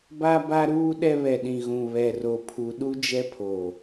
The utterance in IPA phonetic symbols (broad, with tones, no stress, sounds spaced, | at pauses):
b a˦ b a˦ ɾ uː˦ ɗ ɛ˦ β ɛ˨ ɗ ĩ˨ ɣ ũ˨ β ɛ˨ r o˨ pʰ u˨ ɗ u˦ d͡ʒ ɛ˦ pʰ o˨